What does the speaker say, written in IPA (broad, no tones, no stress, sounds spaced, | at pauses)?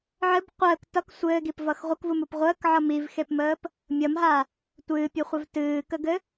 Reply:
ʕ ɘ b qʷ əː k t ʌ k sʷ ɘː ɡ i p v ʌ x ʁʷ ə k v u m u p ʁʷ əː k ʕ ʌ m i v x e p m əː p | mʲ ʌ m ɦ a | tʷ ɨː pʲ u χʷ ə v t ɨː k ə ɡ ɘ